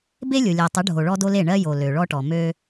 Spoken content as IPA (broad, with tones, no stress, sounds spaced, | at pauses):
b e˦ lʲ o˨ lʲ o˨ tˤ o˨˦ ɖʱ o˨ ɭ ɔ˦ d o˦ l e˦˨ ɳ ɜ˦ j o˨ l ø˨ ɭ ɔ˦ ʈ ɔ˨ m ø˦